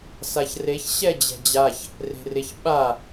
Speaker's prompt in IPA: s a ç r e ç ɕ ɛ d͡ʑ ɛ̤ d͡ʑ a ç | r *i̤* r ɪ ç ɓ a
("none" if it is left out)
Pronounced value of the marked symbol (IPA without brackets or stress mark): e̤